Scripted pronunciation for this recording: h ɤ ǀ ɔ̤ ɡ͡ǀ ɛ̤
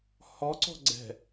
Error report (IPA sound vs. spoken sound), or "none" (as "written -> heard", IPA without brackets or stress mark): ɤ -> ɔ